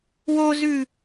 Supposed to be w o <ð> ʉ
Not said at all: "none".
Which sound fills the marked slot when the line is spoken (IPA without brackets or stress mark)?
z